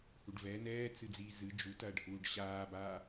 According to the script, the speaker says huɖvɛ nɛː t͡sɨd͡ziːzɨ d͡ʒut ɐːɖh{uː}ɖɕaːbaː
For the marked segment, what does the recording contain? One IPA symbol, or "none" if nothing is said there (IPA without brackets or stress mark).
uː